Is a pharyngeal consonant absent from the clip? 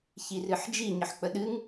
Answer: no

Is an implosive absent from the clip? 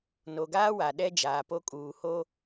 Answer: no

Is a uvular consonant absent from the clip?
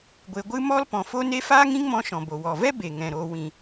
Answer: yes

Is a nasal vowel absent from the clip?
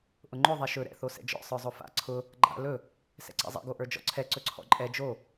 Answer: yes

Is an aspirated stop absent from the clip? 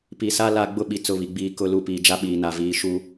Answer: yes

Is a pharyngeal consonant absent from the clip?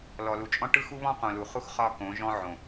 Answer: no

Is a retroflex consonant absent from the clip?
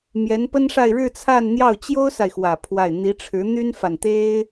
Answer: no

